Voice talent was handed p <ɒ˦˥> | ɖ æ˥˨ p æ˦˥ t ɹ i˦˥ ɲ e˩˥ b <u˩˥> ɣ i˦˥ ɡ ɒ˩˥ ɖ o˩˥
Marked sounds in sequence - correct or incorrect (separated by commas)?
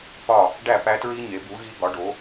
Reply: incorrect, correct